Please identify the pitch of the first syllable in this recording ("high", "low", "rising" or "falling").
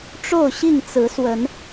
falling